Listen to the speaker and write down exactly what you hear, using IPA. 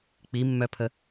k͡pimːœpʰə

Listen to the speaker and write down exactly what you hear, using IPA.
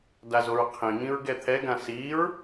dazoɹqʰĩŋĩɹ ɡɛt̪ʰɛɡã siɹ

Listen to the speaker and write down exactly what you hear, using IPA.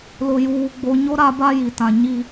lʊ˨juː˨ ɡ͡bo˨ɲo˦ ɾa˦ba˦ji˨tã˨ ɲi˦

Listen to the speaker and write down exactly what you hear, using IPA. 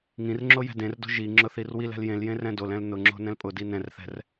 ŋĩrŋ͡ǁo jɛ̤dẽrdo̤ ʒiŋ͡ǁʊ θirwilɛ̤l jẽljẽ rɛ̃dolɛ̃l nʊŋ͡ǁo̤ nɛ̃lpʼʊdi nɛ̃rθɛ̤r

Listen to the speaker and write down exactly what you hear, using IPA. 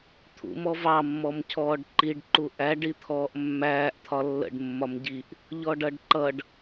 t̪ʰṵ mɔvɑ mːɔmcʰɔːɖǃiɖ ǃuʔæ ɖit̪ʰɔːʔmːæːʔ t̪ʰɒlːə̰ɖ mːɒmɟiʔ | ʎɔɖʌɖǃʌɖ

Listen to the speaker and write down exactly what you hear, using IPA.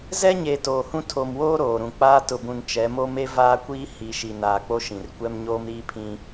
zɛ˦ɲe˨ toː˨hũ˦ tʰo˨mwoː˦ ɾoː˨ɾũ˨k͡paː˦ tʊ˨bũ˨n t͡ʃɛ˨˦mo˦ me˦vaː˦kʷiː˦ hi˨ ʃi˨naː˨ k͡po˦ʃĩ˨rkʷɛ˦m ɲoː˦mɾiː˦pʰĩ˦

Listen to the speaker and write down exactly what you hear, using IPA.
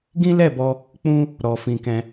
ɡĩ˦lɛ˦˨bɔ˧ | k͡pũ˦ | ɾɔ˧fĩ˧kɛ̃˧

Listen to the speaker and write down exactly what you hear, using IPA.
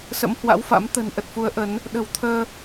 sə̰˧˥mhwa̰˧˥wfa̰˧˥m t̪ə̤˨˩n ʔə˨˩t̚fu˨˦ə̯ ʔə˨˦n | ɗə̤˨˩wt̪ʰəː˧

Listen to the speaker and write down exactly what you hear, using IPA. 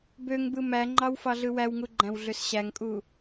bøŋbɯ mæŋ͡ǃɑw fɑɮɯwæwŋu ɡ͡ǃæ̃wɮøsɕæŋkʼu

